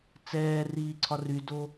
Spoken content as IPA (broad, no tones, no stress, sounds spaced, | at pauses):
t͡s ɛː r iː ǀʰ ɒ r y d o